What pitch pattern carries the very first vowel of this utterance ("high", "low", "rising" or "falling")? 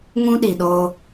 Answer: high